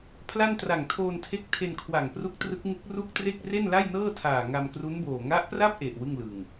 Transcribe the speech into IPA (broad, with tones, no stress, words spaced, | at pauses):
pʰla˥˩n tra˨˩ŋtʰoː˧ntʰe˦˥k̚ tʰe˧nkʰwa˨˩ŋpru˦˥k̚ trɯ˦˥k̚ŋɯ˦˥k̚ ru˥˩k̚tre˥˩k̚ re˥˩nla˥˩jnɤː˥˩tʰaː˨˩ ŋa˧mkru˦˥nboː˨˩ ŋa˦˥ʔpra˥˩p̚ʔe˨˩ʔ wɯ˥˩ŋlɯ˨˩ŋ